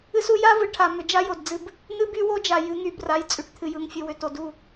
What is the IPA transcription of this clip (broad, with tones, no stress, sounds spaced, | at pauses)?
ɨ˦ s u˦ j a˦ v ɯ˨ ʈʰ a˨ m ʏ˨ d͡ʒ a˦ j o˨ d d͡z ɨ˨ b | n̪ ɨ˦ b y˦ w o˦ d͡ʒ a˨ j ɨ˨˦ ŋ y˨ b r a˨˦ j t͡sʼ y˨ ʈ t̪ʰ ɨ˨ j ɯ˦˨ ŋ fʲ ɨ˨ w ʏ˨ t o˨ d u˦˨